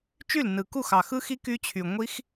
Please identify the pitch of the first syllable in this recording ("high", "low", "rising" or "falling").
falling